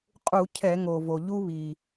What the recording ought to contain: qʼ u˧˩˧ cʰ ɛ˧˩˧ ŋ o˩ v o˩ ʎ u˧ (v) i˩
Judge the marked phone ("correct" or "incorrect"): incorrect